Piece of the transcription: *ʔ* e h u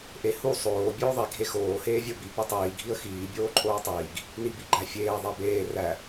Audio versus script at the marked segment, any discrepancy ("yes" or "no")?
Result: no